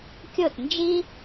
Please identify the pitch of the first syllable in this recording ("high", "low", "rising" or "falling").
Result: falling